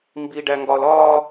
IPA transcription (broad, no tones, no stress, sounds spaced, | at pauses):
m b i ɖ æ ŋ ɡ ɒ l ɒ